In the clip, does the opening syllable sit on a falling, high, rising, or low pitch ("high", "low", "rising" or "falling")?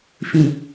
low